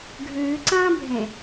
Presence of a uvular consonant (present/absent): absent